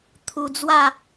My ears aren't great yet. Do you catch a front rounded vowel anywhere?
no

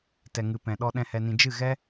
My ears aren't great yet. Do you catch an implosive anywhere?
yes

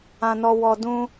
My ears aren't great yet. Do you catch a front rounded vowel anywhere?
no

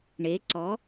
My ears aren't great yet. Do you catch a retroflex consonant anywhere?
yes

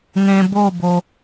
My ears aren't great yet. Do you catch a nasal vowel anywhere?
yes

